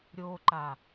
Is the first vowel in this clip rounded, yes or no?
yes